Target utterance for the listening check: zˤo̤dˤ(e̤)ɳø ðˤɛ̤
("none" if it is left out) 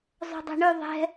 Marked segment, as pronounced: ɛ̤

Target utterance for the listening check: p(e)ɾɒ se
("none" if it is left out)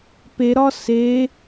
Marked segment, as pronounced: e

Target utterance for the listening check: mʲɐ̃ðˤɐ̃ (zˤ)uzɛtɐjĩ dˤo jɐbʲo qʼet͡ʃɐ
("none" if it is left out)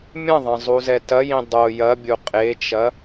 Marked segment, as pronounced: zˤ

